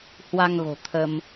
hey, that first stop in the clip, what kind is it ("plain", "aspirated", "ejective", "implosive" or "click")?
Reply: aspirated